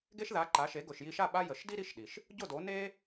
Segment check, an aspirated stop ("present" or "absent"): absent